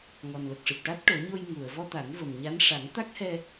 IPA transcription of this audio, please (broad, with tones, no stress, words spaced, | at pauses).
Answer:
ŋɔ˨˩nlə˨˩k̚ʂɨ˨˩p̚ʈa˦˥t̚ ʈo˨˩˦ɲo˧j ŋu˨˩˨ə̯ vɔ˧t̪a˨˩˦nvə˨˩m ɲa˧˥n ʂa˨˩˦ŋt̪a˦˥k̚hɛ˧